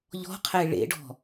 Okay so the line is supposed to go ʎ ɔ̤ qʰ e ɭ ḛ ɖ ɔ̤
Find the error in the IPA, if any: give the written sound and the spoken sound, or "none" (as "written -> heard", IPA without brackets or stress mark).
none